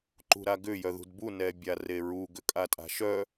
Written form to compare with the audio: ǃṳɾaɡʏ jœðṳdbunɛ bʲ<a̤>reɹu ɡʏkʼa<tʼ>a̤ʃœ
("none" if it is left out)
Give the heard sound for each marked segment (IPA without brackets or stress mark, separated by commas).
a, tʼ